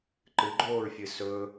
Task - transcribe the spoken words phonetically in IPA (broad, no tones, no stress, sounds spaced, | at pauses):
ǃ ɨ ɡ͡ǃ oː ɹ fʲ ɨ s ɵ